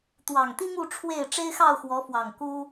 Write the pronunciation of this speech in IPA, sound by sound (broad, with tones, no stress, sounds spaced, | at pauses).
t̪ w ɑ˨˩ ŋ t̪ i˦ ŋ u˥˨ ʈ͡ʂʰ w e˥˨ ɪ̯ ʈ͡ʂ e˦ ɪ̯ x ɑ˥˨ ʊ̯ x w ɔ˨˦ f w ɑ˨˩ ŋ k u˦